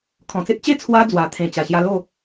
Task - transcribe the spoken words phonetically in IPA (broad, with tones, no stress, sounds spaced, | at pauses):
kʰ ɔ̃˨˩ t͡s e˦ t̚ t͡ɕ e˥˧ t͡sʰ w a˧ d͡z w a˨˩ t̪ʰ ẽ˨˩ t͡ɕ a˨˩ ɕ j a˧ l o˥˧